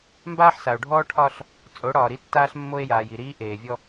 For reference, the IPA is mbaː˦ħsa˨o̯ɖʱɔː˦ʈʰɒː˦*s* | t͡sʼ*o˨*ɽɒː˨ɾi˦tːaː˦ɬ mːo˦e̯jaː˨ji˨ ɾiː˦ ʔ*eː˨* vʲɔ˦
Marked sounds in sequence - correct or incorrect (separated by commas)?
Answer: incorrect, incorrect, correct